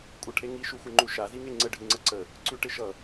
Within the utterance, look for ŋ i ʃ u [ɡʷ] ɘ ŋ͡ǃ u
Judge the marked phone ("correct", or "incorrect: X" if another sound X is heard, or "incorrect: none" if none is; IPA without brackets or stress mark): incorrect: xʷ